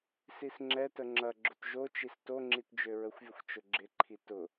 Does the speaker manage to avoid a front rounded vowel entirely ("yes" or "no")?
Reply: no